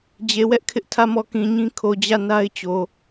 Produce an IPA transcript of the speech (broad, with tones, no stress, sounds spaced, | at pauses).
d͡ʑ e˨ w ɛ˦ ʔ kʰ ɪ˦ ʔ tʰ ä˦˨ m ɔ˦˨ k ĩ˨ ɲ ĩ˦ kʰ o˨ d͡ʑ ä˦˨ n a˦ ɪ̯ t͡ɕ o˨